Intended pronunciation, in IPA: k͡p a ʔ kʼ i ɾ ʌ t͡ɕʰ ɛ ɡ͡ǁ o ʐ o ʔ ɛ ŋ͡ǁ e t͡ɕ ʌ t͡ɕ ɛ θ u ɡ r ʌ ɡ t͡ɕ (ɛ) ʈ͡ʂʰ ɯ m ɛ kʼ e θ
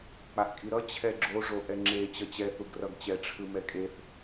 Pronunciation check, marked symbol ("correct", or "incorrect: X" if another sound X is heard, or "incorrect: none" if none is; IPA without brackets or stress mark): correct